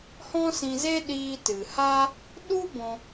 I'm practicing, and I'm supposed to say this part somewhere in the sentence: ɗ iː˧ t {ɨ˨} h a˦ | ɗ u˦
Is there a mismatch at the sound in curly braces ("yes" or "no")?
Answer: no